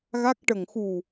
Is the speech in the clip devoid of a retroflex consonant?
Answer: no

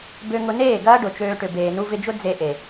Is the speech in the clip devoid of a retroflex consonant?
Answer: no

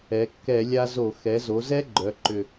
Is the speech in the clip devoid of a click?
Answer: no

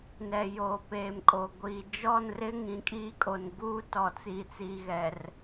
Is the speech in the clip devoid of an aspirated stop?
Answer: yes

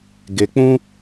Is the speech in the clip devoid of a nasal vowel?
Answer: no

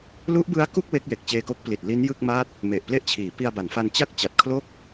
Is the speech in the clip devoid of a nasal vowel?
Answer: yes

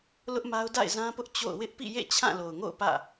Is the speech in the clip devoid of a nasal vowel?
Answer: no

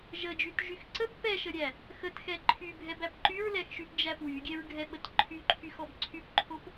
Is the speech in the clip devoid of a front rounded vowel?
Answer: no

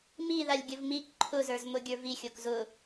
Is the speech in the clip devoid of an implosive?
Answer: yes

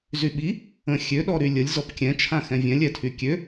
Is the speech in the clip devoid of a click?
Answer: yes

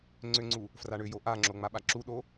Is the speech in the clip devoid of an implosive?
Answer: no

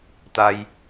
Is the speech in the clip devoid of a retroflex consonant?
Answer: yes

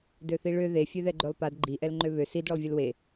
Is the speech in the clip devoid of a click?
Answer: no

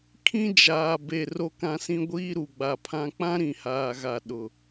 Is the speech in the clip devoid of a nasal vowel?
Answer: no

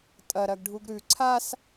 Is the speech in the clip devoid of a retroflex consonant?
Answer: no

